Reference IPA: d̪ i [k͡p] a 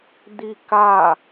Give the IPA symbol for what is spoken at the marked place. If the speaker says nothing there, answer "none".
k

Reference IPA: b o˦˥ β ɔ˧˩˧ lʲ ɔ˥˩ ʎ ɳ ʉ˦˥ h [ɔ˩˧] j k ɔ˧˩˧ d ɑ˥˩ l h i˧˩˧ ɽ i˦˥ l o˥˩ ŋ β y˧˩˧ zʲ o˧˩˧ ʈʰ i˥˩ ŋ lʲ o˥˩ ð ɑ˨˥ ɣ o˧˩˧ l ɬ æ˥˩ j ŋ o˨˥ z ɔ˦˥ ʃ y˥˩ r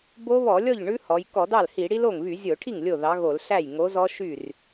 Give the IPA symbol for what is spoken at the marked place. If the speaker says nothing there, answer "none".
ɔ˩˧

